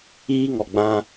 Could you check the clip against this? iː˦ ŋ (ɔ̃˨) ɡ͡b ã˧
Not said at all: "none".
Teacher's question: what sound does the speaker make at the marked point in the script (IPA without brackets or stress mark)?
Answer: ɔ˨